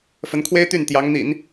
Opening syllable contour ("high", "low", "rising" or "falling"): rising